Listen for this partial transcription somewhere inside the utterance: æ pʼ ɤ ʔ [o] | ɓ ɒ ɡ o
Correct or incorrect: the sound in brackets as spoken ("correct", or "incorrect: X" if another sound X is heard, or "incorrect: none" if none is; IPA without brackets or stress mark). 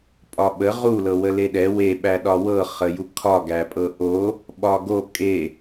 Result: correct